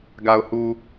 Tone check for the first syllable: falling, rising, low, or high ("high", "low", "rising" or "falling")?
low